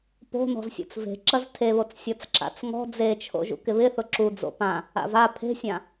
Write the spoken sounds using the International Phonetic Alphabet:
p o̤ n ɔ̤ z sʲ ṵ t͡s v e̤ ǁ ɐ z tʰ e β o t͡s sʲ ɔ t͡s ǁ a̰ t͡s ŋ ɔ̤ d͡z e t͡ʃʰ o̰ ʒ ṵ k ɪ β ɪ θ ʊ ǁ u d͡z o̰ p ã | a̰ v a pʰ e̤ sʲ ã

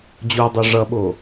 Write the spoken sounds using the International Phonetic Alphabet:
d͡ʑ o dˤ o ʐ ʌ ɓ o

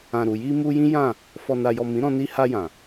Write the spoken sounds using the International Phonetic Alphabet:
ã˨ ɾ u˨ j i˧ m u˧ j ĩ˦ j ã˦˨ | f ɔ˨ n a˨ j ɔ˨ m ĩ˨˦ ɾ ɔ̃˧ n i˧ h a˧ j ã˨

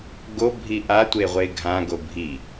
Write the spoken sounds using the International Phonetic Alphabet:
ɡ o bʱ i ʔ a tʷ e ʁʷ e ɡʱ ã ɡ o bʱ i

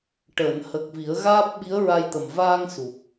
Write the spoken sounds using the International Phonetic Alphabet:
ʈ əː˨˩˨ n h ə˨˩ k̚ v i˨˩˦ ə̯ ɣ aː˦˥ p̚ ɓ i˧˥ ə̯ ɹ a˧ j t̪ ə˨˩ m v aː˧ ŋ s u˨˩ p̚

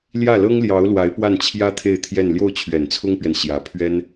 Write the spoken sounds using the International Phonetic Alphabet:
l j ä˥˩ l ɤ˥ ŋ l j ɑ˧˥ ʊ̯ l w a˧˥ ɪ̯ p w a˥˩ n t͡ɕʰ j ä˥ t̪ʰ e˥˧ ɪ̯ t̪ʰ j ɛ˥˧ n l j o˥˩ ʊ̯ t͡ɕʰ ɥ ɛ˨˩ n t͡sʰ ʊ˥ ŋ p ɥ ɛ˨ n ɕ j ä˧˥ pʰ ɥ ɛ˥ n

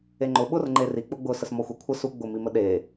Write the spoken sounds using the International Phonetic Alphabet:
e ŋ͡ǃ ʊ ɓ ʊ r ŋ͡ǃ e r i k͡p ʊ ɡ͡b ʊ s ə s m ɔ xʷ e kʷʰ ə s u ɡ͡b ʊ m i m ə ɗ e

